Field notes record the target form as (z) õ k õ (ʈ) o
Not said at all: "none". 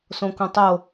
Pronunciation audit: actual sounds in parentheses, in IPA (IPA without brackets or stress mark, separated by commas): s, tˤ